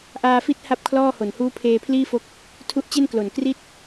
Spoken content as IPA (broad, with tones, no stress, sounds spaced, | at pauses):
ʔ aː˧ f i˦˥ t̚ h a˥˩ p̚ kʰ l ɔː˥˩ h o˨˩ n h uː˦˥ pʰ eː˧ pʰ l iː˥˩ f o˦˥ k̚ | tʰ u˦˥ ʔ t͡ɕ e˥˩ n k l o˨˩ n k r i˥˩ t̚